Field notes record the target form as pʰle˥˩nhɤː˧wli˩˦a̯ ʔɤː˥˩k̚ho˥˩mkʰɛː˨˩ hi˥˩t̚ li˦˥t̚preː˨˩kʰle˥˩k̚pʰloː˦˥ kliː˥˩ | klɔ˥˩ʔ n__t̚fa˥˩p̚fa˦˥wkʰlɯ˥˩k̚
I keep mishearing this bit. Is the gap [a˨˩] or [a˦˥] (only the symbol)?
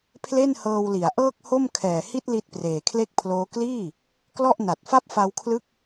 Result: a˨˩